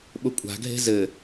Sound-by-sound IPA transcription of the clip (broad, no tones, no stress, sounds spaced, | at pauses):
ɓ ʊ kʷʼ a̤ ɡʱ e̤ z ɘ